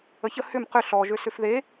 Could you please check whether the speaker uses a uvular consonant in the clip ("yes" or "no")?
yes